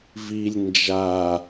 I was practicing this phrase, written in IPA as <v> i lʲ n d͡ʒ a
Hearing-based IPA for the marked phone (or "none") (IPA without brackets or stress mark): v